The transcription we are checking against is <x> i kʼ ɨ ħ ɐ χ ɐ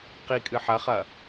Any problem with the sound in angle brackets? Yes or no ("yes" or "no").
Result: yes